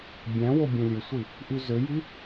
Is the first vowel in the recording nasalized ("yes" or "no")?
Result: yes